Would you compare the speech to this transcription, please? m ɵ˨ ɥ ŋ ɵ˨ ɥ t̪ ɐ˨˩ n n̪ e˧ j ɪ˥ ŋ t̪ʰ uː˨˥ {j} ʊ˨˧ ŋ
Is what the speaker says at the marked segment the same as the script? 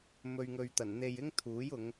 yes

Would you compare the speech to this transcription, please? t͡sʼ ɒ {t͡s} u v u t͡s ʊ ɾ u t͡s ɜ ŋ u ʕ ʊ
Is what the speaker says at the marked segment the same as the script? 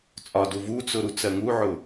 no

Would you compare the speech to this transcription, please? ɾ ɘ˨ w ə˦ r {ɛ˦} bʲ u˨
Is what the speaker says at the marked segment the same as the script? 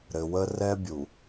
yes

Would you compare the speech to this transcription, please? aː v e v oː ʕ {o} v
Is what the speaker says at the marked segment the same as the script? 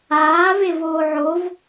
yes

